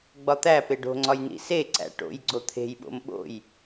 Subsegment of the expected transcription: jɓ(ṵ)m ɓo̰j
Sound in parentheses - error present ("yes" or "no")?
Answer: yes